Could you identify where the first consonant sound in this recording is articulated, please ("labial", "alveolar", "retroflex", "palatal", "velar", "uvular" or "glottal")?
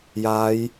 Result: palatal